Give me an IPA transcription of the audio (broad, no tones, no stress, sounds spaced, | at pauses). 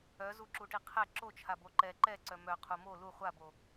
œ z u ǁ u ʈ i qʰ ɛ ǁ o t͡ʃʰ a b o ǃ ɛ ǃ ɛ ǀ œ m œ qʰ u m o l u χʷ a b o